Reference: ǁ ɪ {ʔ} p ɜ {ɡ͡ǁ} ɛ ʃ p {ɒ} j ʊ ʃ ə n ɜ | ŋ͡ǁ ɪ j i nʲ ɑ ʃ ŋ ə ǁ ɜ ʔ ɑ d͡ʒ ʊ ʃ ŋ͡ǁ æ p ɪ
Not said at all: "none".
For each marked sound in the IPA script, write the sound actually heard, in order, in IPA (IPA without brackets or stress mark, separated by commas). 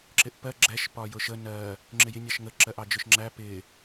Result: ʔ, ɡ͡ǁ, ɒ